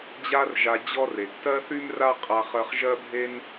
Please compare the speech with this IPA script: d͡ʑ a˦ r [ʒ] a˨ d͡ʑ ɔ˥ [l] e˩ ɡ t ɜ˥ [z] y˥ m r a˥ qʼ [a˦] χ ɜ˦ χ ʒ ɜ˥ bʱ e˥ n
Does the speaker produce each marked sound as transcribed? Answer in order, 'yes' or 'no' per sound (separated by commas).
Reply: yes, no, no, yes